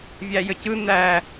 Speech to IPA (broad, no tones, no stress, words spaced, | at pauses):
vʲæjəcɯ n̪æ